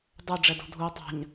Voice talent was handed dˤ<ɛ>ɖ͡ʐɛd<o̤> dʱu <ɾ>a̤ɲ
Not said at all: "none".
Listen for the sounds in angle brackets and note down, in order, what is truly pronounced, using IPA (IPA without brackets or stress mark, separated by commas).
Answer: ɛ, o̤, tˤ